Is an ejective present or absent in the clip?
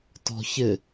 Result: absent